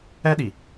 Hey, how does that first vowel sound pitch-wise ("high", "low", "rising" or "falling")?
high